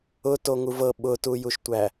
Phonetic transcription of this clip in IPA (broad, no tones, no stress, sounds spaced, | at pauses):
ʊ t o ŋ u v ɤ ɓ ʊ t u j u ʃ tʷ æ